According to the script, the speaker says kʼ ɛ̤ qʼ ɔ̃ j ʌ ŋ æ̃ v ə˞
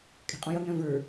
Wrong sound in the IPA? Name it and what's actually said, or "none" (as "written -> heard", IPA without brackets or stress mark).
none